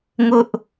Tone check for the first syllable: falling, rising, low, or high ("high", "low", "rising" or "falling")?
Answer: high